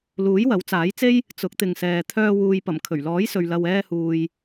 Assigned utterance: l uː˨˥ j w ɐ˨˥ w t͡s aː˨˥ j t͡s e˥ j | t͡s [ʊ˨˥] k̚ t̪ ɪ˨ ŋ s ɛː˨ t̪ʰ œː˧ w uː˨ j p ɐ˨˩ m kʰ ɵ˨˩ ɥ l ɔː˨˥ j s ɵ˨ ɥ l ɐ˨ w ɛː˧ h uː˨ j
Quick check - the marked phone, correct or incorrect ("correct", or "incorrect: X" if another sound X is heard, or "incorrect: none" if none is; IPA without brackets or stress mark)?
correct